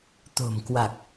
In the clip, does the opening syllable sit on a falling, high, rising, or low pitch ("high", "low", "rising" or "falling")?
low